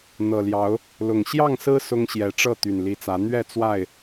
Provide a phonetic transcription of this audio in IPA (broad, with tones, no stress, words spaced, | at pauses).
n̪ɤ˨˩ljɑ˨˦ʊ̯ | lʊ˨˩ŋ ɕjɑ˥˨ŋsɹ̩˦ sʊ˦ŋɕjɛ˨˦ʈ͡ʂɤ˥˨ t̪y˨˩nli˨˦t͡sä˨˦ n̪ɥɛ˥˨t͡swa˥˨ɪ̯